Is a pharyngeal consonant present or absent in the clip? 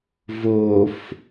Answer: absent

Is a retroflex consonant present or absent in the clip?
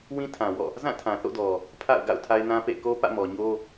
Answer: absent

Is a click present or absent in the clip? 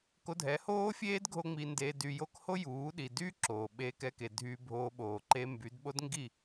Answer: present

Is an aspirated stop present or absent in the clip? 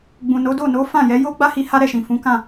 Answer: absent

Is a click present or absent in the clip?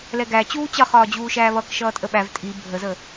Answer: absent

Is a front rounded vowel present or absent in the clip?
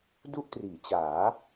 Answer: absent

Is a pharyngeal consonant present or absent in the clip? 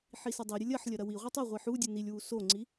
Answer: present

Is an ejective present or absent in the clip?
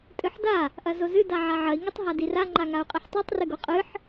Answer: present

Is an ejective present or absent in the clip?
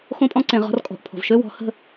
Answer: present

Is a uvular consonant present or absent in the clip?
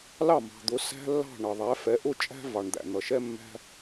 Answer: absent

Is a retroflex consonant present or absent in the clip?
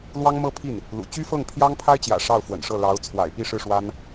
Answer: present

